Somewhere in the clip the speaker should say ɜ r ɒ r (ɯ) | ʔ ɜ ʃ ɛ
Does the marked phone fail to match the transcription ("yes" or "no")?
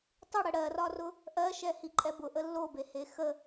yes